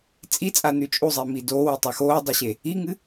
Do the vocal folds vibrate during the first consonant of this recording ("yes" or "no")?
no